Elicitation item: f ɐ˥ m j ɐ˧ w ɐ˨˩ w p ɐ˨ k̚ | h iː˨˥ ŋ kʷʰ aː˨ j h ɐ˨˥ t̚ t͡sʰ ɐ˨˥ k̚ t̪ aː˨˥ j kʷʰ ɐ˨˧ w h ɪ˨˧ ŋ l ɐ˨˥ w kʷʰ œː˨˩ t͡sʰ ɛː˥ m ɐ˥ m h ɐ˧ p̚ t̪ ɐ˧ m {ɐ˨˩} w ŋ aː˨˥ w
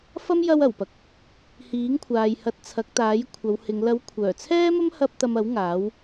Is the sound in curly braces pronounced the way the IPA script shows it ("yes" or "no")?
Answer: no